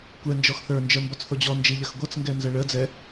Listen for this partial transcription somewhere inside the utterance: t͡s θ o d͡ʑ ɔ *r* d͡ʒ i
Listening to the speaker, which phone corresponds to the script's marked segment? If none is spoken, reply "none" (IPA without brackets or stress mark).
n